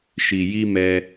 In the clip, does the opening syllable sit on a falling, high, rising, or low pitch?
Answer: low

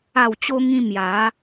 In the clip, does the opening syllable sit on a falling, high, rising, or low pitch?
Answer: low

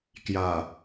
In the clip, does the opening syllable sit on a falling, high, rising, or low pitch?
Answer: low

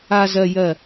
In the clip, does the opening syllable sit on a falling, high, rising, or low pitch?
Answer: low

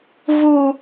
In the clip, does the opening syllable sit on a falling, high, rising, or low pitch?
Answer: high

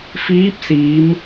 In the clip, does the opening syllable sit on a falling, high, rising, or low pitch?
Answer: rising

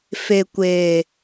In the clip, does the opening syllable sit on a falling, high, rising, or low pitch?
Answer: low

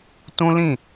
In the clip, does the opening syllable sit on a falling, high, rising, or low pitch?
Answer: high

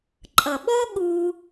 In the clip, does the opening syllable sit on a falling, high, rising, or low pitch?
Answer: low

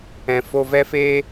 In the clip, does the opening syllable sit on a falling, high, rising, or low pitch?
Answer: low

